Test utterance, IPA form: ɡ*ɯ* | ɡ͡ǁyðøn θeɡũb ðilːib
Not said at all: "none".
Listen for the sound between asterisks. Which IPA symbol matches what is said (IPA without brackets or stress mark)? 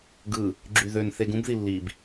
ɯ